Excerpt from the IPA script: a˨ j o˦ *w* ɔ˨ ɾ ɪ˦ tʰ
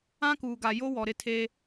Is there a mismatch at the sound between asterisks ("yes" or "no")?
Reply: no